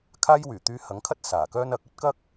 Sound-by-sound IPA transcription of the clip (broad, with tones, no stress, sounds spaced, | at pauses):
kʰ aː˥ j w yː˨˩ t̪ yː˧ h ɐ˨˥ ŋ kʰ ɐ˥ t̚ s aː˨˩ k œː˥ n ɐ˨˥ k̚ ɵ˥ t̚ k ɐ˥ k̚